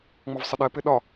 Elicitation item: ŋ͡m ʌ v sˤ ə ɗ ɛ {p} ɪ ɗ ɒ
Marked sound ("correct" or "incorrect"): correct